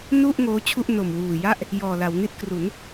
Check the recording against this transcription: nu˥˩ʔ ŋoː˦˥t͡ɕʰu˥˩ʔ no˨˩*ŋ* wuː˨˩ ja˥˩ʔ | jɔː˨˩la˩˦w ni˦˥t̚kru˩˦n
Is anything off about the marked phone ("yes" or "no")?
yes